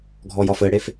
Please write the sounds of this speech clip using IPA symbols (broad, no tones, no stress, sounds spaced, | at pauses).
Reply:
ɡʱ ɔ j ɒ f ɘ ɽ e f